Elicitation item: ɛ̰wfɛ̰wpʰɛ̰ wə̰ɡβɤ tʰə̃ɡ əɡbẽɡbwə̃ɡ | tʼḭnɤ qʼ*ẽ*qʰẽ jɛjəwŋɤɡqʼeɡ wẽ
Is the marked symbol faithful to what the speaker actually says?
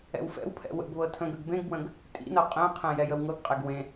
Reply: yes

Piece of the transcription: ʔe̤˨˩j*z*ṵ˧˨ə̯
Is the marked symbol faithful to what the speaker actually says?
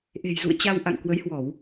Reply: yes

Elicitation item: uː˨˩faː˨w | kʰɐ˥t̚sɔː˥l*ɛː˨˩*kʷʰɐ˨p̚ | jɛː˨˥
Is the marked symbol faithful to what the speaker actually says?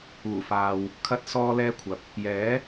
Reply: no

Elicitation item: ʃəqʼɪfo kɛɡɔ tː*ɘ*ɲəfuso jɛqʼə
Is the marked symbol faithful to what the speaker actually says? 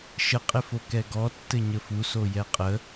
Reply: yes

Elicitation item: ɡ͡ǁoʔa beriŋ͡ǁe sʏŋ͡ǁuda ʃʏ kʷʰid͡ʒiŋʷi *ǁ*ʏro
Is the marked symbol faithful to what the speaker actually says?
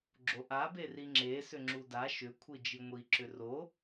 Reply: yes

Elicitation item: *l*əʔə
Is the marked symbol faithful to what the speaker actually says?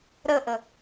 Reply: no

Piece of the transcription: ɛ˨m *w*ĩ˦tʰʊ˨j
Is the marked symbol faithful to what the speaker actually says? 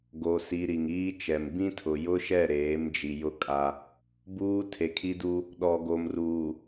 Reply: no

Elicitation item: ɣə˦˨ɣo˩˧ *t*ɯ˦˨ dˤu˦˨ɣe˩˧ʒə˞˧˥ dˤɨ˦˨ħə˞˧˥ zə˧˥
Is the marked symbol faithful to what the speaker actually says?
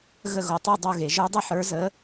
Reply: no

